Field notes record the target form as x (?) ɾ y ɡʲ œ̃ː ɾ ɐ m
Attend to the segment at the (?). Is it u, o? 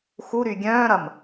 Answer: u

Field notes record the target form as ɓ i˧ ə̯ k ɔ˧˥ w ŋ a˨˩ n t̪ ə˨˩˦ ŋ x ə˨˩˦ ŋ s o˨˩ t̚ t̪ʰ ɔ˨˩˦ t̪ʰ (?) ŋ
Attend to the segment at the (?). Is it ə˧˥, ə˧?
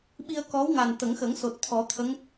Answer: ə˧˥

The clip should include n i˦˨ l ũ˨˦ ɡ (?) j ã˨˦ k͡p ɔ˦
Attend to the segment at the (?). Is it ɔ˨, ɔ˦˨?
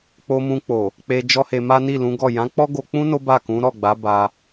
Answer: ɔ˦˨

